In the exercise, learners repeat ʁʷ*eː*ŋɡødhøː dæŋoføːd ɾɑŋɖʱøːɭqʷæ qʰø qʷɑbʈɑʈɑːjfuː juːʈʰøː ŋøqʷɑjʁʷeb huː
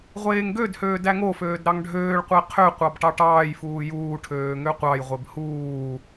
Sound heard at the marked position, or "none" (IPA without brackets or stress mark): eː